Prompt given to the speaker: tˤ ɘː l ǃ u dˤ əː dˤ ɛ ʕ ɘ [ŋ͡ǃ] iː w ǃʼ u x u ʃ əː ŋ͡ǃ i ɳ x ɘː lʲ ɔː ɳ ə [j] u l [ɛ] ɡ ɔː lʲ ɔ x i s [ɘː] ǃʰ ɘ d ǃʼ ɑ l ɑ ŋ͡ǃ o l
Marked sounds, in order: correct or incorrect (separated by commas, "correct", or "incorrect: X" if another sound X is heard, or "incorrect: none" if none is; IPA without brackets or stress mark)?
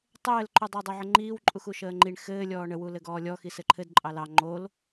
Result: correct, incorrect: w, incorrect: ɘ, incorrect: ɘ